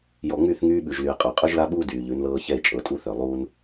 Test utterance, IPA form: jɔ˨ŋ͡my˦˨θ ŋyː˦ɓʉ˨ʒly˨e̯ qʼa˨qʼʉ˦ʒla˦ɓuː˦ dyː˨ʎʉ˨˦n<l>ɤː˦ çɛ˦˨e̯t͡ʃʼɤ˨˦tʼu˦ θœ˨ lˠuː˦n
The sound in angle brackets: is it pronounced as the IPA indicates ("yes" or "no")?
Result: yes